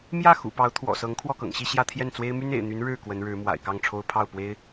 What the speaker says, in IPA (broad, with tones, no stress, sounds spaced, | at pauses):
m j ä˥˩ x ṵ˨˩ p ɑ˧˥ ʊ̯ t̪ʰ w ɔ̰˨˩ s ɤ˧˥ ŋ kʰ w ɔ˥˩ k ɤ̰˨˩ ŋ ɕ i˥˧ ɕ j ä˥˧ t̪ʰ j ɛ˥˩ n t͡s w e˥ ɪ̯ m y˥ n ḛ˨˩ ɪ̯ n̪ y˧˥ n ɻ ɻ̩˥˩ k w ə˧˥ n ɻ ɻ̩˧˥ m w a̰˨˩ ɪ̯ k ɑ˥˩ ŋ ʈ͡ʂʰ o˥ ʊ̯ pʰ ɑ˥˩ ʊ̯ p w e˥ ɪ̯